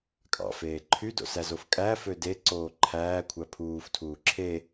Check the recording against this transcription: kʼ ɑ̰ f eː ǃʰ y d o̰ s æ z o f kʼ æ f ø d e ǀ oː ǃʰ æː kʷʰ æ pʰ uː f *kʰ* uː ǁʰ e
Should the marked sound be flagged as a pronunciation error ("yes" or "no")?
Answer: yes